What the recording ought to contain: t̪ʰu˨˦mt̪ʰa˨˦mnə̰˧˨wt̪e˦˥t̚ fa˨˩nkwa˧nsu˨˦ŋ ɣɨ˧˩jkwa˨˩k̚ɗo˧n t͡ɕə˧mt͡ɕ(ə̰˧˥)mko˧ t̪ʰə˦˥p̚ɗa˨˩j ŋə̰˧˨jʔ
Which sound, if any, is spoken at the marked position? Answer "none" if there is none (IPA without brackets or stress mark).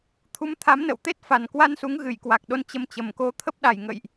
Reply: ə˨˩